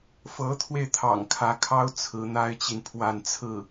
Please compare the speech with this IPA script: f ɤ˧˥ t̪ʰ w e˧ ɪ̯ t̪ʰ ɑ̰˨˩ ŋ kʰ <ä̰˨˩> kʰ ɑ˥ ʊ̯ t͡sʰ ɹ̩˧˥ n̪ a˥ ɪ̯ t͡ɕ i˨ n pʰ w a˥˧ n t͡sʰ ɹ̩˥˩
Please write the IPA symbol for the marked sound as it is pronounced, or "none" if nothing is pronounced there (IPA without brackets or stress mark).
ä˧˥